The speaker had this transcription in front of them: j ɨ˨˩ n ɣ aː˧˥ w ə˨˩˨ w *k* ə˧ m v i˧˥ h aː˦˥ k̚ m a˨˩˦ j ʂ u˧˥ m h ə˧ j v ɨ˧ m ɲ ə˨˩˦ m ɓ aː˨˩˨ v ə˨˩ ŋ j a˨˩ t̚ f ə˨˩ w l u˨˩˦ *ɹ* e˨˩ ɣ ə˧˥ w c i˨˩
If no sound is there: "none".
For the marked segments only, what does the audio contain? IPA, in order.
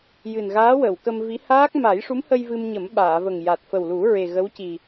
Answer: k, ɹ

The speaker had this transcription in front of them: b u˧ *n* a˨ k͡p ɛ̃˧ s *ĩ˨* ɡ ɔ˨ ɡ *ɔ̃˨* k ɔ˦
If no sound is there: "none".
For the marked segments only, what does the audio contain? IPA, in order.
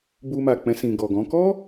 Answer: m, ĩ˨, ɔ̃˨˦

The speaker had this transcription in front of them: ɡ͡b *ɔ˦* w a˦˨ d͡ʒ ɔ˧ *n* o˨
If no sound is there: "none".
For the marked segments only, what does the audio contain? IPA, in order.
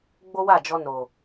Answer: o˦, n

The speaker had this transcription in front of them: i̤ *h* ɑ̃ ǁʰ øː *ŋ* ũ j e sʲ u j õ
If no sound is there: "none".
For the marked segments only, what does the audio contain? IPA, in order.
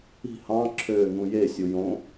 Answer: h, ŋ

